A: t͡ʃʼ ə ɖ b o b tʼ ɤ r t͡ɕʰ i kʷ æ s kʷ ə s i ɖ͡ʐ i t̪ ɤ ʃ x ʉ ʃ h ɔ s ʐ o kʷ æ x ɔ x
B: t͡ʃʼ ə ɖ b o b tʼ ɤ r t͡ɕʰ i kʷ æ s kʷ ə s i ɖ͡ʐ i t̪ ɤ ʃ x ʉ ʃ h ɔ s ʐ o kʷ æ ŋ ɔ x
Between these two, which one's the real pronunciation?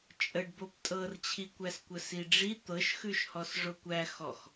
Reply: A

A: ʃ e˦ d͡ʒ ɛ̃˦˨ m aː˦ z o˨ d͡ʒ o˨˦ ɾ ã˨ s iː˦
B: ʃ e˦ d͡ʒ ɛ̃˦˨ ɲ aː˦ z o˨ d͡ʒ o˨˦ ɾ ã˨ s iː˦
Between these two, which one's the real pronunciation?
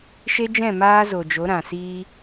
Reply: A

